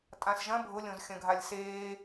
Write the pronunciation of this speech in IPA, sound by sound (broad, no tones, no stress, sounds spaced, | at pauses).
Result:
tʼ ã s ʒ ɐ̃ bʱ ʊ lʲ õ z xʲ ɐ̃ ɡʱ a lʲ s eː